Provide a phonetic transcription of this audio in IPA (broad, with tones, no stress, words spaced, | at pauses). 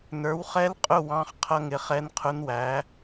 nə˞˩˥wχɛ˧˥lqʼʊ˦˨ wɑ̃˧˥χqʰʌ˧˥ŋɪ˩˥χɛ˧˥n qʰʊ˧˥nwæ˩˥